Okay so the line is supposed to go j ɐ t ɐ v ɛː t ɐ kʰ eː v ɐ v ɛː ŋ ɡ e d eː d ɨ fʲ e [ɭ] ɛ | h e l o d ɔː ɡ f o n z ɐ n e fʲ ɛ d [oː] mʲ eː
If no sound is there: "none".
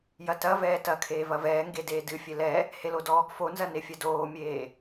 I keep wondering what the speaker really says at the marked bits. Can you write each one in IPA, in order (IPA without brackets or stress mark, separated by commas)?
l, oː